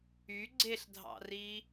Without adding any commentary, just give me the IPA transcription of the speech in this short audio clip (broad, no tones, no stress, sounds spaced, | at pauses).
y ɡ͡ǀ e ɬ dʱ ɑ̰ r i